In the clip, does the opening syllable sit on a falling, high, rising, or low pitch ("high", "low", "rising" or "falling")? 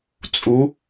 rising